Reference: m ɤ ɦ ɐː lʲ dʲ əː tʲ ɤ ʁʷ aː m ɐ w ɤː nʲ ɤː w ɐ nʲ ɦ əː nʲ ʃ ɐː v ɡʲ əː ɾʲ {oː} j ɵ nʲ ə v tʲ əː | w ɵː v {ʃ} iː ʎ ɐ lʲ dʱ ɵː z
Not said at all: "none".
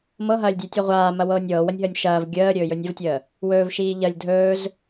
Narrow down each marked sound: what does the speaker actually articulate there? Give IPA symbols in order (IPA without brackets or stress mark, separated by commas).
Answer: ɵː, ʃ